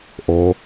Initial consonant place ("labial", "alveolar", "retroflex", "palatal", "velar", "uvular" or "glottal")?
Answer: glottal